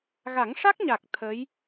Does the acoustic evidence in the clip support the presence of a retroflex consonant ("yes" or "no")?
yes